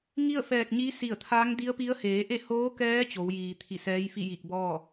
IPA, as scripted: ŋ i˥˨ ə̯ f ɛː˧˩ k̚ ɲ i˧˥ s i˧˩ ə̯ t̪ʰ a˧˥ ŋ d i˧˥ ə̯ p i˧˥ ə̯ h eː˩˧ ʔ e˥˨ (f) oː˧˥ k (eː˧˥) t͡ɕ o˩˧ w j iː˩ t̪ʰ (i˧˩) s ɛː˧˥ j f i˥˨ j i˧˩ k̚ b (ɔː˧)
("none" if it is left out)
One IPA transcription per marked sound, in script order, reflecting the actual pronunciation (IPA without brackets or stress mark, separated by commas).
h, ɛː˧˥, i˧˩, ɔː˥˨